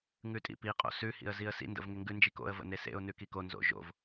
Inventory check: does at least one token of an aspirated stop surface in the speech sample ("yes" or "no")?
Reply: no